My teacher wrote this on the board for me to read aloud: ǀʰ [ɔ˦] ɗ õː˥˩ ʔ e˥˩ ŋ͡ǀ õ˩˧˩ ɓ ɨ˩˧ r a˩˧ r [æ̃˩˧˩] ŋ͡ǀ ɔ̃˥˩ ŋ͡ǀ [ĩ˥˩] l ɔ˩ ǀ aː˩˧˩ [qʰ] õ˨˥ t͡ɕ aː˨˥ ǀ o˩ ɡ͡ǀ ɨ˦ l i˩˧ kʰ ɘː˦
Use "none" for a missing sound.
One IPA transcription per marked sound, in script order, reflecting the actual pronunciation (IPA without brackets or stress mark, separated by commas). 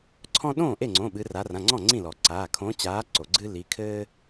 ɔ̃˦, ã˩˧˩, ĩ˥˩, kʰ